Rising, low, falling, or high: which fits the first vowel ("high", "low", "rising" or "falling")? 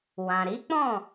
low